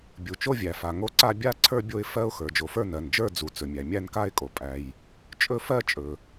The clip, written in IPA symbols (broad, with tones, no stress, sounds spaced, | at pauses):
bʲ u˨ t͡ʃ o˥˧ vʲ æ˨ f a˨ ŋ o˥˧ ǀ a˥˧ bʲ a˥˧ ǀʰ ə˞˥˧ bʲ o˥˧ ɪ̯ f ɜ˥˧ ʊ̯ x ə˞˨ d͡ʒ o˨ f ə˞˥˧ n ɜ˨ n d͡ʒ ə˞˥˧ d͡z u˨ t͡s ɵ˨ mʲ æ˨ mʲ æ˥˧ n k a˥˧ ɪ̯ kʼ o˨ pʼ æ˨ j | t͡ʃʼ ɵ˥˧ f ɜ˥˧ t͡ʃʼ ɵ˨